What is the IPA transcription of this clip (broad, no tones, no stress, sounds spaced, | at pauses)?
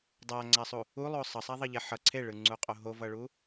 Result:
dˤ a ŋ͡ǀ a sˤ u | u lˠ o sˤ ʌ sˤ a ðˤ ʌ ʎ ɛ ħ ʌ ǀʰ e ɭ ɯ ŋ͡ǀ u qʼ o ɦ o v ʌ ɭ u